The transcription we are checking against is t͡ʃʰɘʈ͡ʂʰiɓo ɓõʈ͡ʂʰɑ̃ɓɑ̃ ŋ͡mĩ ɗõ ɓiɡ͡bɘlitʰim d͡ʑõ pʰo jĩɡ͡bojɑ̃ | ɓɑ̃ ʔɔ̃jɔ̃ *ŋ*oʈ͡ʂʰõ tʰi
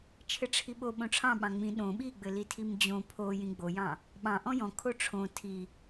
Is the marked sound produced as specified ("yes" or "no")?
no